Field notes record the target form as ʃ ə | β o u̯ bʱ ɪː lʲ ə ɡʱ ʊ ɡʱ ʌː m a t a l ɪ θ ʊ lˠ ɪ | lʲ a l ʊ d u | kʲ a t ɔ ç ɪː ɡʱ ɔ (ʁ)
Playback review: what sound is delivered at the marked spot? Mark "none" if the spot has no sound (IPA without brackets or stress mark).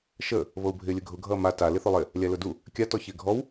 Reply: w